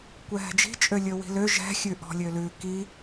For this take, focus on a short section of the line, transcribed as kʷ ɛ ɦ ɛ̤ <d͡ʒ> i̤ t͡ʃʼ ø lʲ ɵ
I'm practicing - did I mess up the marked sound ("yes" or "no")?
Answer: no